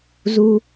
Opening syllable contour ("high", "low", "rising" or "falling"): high